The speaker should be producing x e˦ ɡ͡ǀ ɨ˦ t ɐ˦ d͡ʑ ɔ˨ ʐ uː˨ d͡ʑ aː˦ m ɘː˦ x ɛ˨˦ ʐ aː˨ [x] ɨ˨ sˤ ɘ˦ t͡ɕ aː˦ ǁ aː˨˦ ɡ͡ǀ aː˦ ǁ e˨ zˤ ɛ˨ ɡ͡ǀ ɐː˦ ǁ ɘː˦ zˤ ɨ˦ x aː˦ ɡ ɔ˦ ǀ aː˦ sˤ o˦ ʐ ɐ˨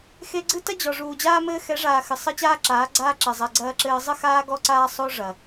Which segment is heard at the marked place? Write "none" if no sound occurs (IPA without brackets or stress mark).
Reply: x